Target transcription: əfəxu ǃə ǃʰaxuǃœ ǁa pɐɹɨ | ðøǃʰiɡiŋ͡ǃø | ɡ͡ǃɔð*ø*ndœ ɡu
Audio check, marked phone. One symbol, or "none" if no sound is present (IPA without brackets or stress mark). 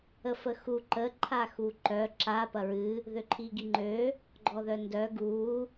œ